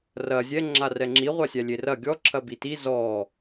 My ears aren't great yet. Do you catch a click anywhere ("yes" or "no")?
yes